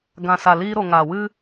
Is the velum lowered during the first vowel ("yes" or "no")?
yes